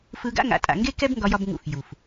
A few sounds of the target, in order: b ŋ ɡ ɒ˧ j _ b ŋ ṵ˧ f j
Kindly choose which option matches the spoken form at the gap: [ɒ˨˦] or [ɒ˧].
ɒ˧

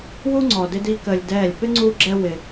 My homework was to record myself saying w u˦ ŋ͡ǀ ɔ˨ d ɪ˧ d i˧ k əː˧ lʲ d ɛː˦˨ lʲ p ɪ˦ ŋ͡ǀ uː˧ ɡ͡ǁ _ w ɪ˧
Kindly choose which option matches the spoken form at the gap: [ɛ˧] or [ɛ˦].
ɛ˧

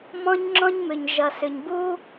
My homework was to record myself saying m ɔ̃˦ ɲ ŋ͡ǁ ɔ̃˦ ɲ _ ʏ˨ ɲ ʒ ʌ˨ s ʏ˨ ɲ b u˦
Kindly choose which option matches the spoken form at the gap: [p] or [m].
m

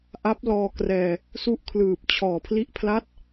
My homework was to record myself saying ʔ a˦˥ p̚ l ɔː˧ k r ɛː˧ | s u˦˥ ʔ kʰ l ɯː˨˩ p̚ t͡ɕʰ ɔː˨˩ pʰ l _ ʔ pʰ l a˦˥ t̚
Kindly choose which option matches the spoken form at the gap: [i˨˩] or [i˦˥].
i˦˥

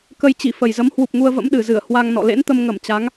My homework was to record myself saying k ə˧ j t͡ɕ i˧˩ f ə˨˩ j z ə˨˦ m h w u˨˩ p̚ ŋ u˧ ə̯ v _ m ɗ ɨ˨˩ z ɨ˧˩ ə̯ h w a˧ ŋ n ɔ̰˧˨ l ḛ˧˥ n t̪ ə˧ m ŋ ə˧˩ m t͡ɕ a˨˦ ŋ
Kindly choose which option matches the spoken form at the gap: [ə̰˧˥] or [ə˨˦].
ə̰˧˥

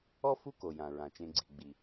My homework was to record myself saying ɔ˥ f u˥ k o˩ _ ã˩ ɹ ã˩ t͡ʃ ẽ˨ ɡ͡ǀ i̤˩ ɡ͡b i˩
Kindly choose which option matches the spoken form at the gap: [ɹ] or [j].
j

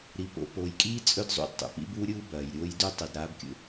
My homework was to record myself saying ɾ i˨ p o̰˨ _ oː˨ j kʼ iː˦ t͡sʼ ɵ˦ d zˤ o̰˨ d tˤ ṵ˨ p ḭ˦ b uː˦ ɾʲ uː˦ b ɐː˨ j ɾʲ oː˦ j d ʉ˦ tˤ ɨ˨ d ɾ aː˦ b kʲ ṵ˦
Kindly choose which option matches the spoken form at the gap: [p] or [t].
p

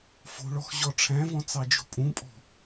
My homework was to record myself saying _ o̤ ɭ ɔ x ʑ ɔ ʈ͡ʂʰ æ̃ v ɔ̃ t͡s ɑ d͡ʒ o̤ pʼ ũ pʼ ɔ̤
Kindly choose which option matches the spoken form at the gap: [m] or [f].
f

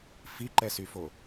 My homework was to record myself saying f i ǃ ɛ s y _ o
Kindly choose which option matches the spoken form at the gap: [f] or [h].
f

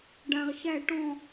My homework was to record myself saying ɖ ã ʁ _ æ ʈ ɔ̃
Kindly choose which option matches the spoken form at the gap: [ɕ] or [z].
ɕ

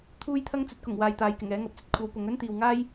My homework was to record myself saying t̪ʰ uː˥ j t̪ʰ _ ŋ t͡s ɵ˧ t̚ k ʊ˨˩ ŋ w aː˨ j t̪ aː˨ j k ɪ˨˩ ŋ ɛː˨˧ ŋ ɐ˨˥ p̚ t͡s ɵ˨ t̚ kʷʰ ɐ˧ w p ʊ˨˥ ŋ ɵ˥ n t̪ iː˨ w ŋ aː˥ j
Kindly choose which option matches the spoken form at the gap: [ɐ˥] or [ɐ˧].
ɐ˥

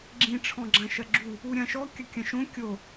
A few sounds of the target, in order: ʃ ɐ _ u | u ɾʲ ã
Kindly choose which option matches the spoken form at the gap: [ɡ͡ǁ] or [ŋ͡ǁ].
ɡ͡ǁ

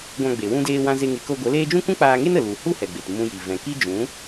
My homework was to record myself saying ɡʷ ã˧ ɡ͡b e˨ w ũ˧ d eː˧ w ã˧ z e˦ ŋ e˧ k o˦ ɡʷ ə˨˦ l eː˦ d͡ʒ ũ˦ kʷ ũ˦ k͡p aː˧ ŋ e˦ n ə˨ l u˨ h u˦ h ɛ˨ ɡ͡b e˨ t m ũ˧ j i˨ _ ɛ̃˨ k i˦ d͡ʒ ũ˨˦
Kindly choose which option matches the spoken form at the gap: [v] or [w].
v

